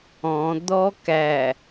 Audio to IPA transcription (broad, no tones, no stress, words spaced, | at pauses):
ɔ̃ d̪ɔkæ